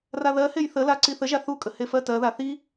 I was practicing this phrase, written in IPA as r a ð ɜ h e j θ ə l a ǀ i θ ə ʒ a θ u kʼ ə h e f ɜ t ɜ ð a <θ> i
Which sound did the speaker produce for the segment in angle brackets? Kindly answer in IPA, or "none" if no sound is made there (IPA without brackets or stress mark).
θ